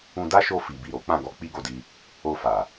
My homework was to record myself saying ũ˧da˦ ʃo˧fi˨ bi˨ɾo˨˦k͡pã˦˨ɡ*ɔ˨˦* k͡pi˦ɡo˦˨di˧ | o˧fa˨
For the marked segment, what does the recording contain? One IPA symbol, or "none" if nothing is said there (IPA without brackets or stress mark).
ɔ˨˦